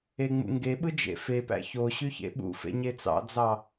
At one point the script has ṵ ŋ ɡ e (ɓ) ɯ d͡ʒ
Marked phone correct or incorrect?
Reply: correct